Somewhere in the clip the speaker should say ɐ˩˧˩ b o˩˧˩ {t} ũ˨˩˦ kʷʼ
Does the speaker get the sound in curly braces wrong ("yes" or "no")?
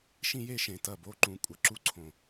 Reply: yes